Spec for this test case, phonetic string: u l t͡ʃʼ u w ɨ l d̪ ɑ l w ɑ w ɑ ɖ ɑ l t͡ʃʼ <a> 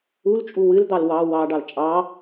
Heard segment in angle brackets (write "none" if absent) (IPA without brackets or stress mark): ɑ